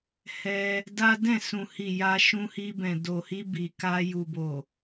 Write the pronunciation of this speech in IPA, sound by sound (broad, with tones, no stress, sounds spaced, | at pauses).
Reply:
h ɛ˧ | d a˦ d ɛ̃˦˨ s ũ˨ h i˨ j a˧ ʃ ũ˧ h i˧ b ɛ̃˨ d o˨ h i˧ b i˨ k a˧ j u˨ b o˨